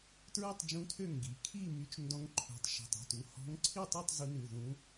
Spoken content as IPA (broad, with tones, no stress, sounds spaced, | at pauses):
t ɹ ʉ˥˨ tˤ d͡ʒ ũ˧˥ tʰ ø˥˨ ŋ ɡ i˩˧˩ kʰ i˥˨ m y˧˥ t͡ʃ n d ɔ̃˧˥ ŋ ǃʰ ṳ˩˧˩ tˤ ʃ ṳ˩˧˩ tˤ i̤˩˧˩ t u˩˧˩ h ɔ̤˧˥ ŋ ǀʰ i˥˨ tˤ ʉ˥˨ tˤ z u˧˥ n ʉ˩˧˩ ð ũ˧˥